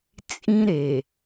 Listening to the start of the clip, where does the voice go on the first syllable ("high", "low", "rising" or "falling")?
high